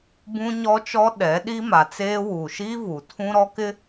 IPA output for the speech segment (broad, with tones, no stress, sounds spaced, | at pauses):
b ũ˦ ɲ ɔ˦ t͡ʃ ɔ˦ ɗ ɛ˨˦ ɗ i˦ m a˨ t͡s eː˦ w u˨ ʃ i˦ v u˨ tʰ ũ˦ ɾ ɔ˦ k ɪ˦